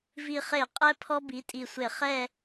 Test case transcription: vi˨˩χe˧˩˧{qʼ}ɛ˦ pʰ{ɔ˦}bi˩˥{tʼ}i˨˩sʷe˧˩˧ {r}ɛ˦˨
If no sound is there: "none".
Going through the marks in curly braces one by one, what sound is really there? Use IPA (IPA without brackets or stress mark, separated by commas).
qʼ, ɔ˦, tʼ, χ